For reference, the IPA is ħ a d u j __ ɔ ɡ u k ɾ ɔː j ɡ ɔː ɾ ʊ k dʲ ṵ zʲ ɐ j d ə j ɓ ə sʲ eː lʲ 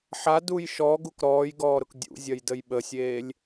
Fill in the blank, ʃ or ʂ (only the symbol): ʃ